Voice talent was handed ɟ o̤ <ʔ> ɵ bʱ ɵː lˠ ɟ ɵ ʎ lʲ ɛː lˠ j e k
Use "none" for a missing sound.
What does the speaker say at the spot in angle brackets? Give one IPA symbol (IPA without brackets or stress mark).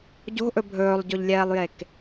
ʔ